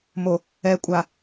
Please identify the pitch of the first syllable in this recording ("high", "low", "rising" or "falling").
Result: low